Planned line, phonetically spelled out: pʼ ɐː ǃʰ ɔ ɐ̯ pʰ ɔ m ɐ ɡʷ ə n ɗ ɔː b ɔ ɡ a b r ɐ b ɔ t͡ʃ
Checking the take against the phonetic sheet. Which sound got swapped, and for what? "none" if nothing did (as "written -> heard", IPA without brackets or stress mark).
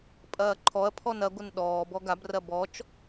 m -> n